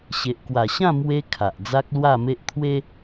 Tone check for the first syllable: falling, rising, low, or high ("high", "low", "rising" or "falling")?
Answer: low